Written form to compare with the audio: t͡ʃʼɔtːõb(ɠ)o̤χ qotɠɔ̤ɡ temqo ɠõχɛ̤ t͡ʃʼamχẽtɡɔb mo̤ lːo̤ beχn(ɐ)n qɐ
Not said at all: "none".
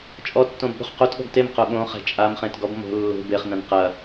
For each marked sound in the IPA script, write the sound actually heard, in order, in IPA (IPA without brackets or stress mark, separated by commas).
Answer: ɠ, ɐ̃